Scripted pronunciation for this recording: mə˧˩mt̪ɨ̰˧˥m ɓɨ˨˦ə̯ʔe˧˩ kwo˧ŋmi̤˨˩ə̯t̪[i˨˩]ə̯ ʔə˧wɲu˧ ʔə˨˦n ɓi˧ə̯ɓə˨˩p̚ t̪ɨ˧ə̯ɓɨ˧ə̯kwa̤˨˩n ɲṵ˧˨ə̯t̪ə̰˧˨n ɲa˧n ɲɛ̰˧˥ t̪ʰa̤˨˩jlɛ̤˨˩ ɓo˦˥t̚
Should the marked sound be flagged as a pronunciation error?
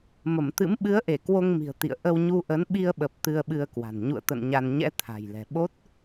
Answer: yes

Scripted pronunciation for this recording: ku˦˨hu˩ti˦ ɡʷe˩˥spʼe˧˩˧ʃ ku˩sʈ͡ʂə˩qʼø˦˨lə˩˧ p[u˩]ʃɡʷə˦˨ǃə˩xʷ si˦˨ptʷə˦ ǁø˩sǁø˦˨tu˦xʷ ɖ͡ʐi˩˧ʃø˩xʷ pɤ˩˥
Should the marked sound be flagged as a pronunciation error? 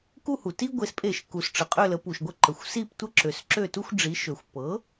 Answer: no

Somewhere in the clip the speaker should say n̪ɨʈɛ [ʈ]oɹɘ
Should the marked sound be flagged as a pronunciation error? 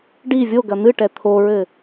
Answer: yes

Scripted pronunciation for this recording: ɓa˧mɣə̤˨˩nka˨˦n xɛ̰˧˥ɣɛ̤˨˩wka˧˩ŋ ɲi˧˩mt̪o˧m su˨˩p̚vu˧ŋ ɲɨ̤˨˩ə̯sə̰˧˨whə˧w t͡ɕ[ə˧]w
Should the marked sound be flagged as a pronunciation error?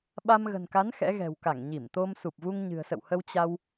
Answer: yes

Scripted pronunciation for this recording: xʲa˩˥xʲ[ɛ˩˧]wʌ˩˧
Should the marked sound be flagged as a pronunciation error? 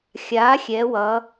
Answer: no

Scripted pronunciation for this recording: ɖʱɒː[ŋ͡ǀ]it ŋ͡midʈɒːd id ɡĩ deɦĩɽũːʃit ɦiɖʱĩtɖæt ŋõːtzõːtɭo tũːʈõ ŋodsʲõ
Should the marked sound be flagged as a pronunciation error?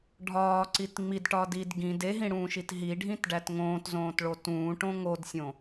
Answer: yes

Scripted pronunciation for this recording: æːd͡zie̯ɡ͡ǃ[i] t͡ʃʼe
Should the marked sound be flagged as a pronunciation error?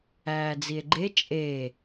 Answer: yes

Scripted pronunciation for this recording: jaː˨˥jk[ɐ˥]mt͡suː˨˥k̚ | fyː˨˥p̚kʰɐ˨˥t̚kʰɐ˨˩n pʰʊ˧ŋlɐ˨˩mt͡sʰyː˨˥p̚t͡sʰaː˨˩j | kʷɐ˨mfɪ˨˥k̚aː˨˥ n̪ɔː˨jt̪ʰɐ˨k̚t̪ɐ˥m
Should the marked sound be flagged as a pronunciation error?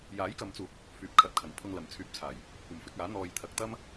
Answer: yes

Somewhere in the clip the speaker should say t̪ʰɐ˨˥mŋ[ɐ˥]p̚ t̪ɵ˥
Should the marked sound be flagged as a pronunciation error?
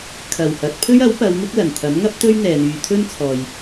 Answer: no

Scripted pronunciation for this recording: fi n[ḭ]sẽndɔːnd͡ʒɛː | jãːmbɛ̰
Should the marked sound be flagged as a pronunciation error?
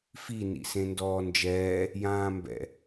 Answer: no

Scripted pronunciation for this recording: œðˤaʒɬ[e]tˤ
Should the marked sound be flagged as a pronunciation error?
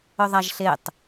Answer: no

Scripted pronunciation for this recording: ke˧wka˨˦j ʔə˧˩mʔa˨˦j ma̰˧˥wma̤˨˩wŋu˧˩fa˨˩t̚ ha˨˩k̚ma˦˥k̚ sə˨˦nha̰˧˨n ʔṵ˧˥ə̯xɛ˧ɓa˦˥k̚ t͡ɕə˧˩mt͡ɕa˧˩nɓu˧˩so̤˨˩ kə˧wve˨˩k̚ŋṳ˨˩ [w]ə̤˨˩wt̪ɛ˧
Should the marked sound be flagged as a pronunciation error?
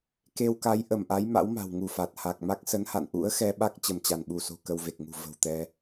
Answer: yes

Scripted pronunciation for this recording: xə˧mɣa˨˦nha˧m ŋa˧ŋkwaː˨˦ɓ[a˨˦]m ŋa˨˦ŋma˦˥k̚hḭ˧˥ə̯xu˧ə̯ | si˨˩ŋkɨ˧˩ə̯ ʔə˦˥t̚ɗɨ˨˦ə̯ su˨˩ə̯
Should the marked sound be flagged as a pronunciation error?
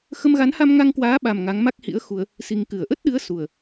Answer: yes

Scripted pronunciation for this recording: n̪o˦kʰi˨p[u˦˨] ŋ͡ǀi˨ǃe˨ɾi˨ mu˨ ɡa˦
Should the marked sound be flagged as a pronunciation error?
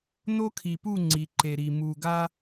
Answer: no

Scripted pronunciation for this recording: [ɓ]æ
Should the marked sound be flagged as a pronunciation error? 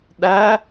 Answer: yes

